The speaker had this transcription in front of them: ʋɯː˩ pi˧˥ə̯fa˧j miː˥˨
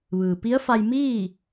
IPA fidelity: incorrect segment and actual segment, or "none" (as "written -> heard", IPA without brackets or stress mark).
none